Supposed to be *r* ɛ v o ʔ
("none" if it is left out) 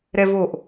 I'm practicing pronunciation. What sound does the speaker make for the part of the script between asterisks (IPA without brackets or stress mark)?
ɾ